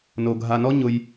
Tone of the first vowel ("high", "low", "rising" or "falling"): low